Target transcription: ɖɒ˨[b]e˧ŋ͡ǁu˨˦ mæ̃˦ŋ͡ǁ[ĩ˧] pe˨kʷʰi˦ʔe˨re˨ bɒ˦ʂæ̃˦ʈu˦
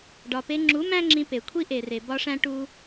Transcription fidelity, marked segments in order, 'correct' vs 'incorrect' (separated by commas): incorrect, correct